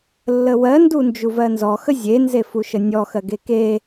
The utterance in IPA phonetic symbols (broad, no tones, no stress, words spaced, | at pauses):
lːəwɜ ndund͡ʒuvɜnzɔ xəzʲenzefu ʃənʲɔ xɜɡeke